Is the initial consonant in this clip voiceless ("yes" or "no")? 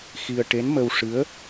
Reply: yes